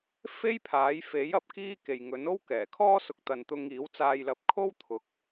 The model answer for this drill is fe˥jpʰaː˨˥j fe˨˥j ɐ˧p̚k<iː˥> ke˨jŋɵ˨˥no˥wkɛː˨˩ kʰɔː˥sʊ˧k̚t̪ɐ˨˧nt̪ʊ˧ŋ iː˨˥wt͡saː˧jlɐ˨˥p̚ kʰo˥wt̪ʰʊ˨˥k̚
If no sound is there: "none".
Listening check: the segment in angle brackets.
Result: iː˥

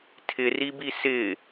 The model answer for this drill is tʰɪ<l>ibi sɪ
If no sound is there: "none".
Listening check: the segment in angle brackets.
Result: r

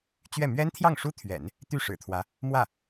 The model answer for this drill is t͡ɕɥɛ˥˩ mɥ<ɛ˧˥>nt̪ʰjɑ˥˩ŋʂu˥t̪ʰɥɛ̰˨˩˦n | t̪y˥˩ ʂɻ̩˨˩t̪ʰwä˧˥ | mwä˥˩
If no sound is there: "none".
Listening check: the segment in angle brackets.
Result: ɛ˥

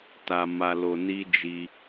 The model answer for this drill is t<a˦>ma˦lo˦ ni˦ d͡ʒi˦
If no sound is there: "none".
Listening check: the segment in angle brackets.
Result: a˦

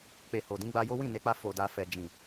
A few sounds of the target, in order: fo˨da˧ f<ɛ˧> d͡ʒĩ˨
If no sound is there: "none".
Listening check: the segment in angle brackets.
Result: ɛ˧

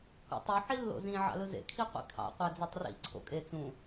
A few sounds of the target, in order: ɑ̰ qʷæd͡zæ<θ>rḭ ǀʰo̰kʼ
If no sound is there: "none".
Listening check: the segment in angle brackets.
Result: tˤ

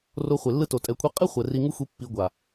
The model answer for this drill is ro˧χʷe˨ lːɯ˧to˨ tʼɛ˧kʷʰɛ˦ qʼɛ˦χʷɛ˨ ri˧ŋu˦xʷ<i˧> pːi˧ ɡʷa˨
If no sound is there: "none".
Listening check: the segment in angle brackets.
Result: i˧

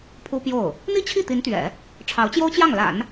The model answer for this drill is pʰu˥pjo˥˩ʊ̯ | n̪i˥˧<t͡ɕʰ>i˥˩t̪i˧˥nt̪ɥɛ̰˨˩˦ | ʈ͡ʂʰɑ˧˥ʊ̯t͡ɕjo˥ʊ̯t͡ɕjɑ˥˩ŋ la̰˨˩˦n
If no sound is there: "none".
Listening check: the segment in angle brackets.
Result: t͡ɕʰ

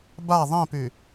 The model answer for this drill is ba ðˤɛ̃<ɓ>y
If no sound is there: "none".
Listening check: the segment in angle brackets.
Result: p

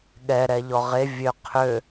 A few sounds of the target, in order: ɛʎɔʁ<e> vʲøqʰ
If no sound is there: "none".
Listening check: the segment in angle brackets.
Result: e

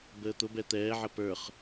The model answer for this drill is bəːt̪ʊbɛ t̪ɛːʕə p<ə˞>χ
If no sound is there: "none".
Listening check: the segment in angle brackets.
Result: ə˞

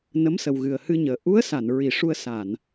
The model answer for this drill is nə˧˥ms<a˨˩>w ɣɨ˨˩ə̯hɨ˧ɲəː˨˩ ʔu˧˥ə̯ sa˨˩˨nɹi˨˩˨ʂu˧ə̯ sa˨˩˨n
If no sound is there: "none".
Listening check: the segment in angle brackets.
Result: ə˨˩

